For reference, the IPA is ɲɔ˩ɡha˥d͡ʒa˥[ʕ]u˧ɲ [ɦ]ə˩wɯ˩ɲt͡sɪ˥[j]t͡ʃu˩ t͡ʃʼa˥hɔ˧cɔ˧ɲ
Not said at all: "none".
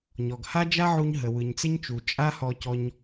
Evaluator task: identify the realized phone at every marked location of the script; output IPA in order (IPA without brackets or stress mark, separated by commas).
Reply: ʕ, ɦ, ɲ